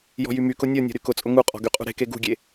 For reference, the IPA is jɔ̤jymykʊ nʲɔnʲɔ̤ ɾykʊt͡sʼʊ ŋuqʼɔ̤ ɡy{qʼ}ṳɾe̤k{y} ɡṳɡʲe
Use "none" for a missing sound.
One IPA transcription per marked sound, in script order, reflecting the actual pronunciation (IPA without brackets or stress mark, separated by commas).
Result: qʼ, e